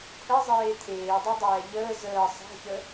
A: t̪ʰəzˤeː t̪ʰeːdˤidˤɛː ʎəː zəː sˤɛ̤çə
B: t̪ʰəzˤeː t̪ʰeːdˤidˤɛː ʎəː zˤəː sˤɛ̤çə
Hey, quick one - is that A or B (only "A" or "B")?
A